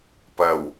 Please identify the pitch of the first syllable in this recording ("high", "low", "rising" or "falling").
low